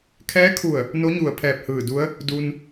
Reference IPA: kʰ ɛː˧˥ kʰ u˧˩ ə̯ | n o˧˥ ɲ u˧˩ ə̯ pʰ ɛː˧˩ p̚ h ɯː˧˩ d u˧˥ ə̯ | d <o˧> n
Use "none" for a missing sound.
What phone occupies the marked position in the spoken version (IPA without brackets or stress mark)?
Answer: u˧